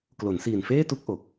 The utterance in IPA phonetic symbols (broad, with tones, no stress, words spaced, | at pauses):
klo˩˦nsiː˨˩nfeː˥˩tu˥˩k̚ ʔo˨˩k̚